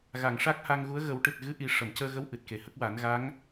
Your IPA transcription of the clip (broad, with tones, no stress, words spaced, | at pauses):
ɣa˨˩˨ŋʂa˦˥k̚ha˧ŋɣu˧˥ə̯ ɣə˨˩˦wʈɨ˨˩t̚ɣɨ˧˥ ʔi˨˩ ʂə˨˩˨mcəː˧ɣə˧˥w ʔɨ˨˩t̚ke˨˩hə˦˥k̚ wa˨˩˦nɣa˧˥ŋ